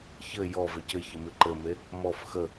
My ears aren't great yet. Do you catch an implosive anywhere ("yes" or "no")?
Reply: no